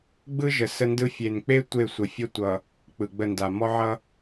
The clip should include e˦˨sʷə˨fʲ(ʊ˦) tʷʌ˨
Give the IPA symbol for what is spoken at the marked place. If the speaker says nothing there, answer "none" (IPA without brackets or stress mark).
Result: ə˦